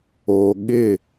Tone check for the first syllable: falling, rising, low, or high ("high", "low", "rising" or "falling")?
low